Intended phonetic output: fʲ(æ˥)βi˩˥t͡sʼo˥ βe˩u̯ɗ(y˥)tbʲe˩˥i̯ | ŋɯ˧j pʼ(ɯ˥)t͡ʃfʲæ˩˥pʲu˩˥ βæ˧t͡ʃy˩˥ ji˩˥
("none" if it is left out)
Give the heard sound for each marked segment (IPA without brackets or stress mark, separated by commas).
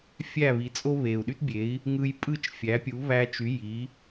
æ˥˩, y˥, ɯ˥˩